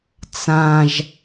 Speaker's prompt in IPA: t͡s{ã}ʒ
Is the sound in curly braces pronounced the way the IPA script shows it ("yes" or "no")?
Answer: yes